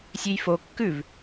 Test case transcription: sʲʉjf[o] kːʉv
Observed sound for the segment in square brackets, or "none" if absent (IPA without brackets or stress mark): o